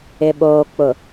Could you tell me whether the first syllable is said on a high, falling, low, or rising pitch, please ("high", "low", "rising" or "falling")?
low